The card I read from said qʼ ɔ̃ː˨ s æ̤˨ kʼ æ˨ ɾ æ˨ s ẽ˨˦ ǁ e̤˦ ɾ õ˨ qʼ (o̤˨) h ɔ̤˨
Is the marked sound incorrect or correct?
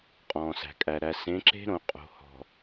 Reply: correct